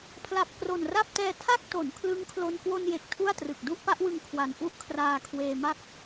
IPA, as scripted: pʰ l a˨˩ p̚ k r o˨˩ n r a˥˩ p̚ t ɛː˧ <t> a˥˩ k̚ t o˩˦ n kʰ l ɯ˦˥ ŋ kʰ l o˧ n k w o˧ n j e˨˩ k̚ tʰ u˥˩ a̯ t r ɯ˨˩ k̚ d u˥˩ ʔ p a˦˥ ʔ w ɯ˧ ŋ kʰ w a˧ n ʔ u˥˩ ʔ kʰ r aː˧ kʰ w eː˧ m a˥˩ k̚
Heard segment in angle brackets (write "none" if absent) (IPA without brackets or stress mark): tʰ